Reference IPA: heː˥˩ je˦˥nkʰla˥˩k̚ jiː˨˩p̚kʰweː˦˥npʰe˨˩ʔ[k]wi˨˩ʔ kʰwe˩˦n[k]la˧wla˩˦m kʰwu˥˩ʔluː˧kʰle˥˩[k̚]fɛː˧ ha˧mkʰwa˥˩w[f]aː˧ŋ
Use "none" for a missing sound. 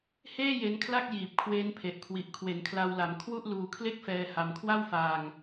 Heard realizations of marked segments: kʰ, kʰ, k̚, f

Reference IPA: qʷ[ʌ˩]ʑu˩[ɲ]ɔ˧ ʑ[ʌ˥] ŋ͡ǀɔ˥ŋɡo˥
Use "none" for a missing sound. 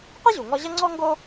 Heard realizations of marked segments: ʌ˥, ŋ, ʌ˥

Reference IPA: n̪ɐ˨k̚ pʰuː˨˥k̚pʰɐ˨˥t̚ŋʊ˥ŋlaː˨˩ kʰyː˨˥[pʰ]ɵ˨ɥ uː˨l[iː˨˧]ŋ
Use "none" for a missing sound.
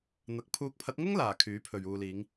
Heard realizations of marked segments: pʰ, iː˨˧

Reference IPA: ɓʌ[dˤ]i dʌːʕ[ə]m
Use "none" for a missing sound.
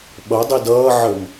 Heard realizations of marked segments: dˤ, ə

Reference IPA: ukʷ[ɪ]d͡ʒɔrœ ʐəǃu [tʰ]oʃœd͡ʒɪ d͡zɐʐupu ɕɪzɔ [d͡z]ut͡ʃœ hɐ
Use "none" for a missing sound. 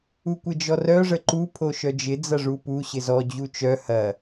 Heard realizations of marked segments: ɪ, pʰ, d͡ʑ

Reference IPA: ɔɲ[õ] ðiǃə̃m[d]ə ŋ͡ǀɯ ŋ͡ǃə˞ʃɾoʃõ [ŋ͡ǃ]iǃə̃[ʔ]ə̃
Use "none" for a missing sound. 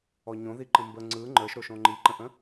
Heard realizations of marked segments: õ, b, ŋ͡ǃ, ʔ

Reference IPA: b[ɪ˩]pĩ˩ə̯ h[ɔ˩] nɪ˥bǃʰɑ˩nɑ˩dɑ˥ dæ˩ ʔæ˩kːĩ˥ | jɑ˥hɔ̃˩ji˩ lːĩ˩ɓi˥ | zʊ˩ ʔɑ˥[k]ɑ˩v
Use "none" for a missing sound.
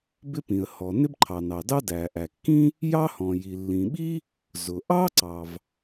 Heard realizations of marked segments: ɪ˥, ɔ˩, ǀ

